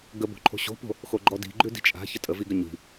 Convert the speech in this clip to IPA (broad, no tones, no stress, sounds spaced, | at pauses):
ɡ ə b o̤ ǃʰ o̤ ɕ o̤ p o̤ | x o ɡ͡ǃ ɔ d i̤ ɡ͡ǃ ʉ d i̤ t͡ʃʼ a̤ ç ə tʼ ə v i ɡ ə ɲ i̤